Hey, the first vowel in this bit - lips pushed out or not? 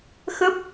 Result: no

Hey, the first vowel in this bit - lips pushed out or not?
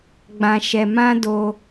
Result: no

